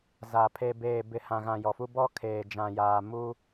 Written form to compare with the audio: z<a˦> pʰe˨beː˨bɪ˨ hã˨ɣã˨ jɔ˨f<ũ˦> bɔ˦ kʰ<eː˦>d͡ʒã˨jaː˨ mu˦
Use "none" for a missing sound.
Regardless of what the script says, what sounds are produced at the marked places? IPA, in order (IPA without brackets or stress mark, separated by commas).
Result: a˨, u˦, eː˨